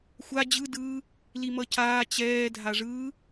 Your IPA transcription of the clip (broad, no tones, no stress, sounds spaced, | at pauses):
xʷ a d͡ʑ ɯ d ɯː | l i m ʌ c aː t͡ɕ ɛː dʱ a ʐ ɯː